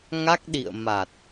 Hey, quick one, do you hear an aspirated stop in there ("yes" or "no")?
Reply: no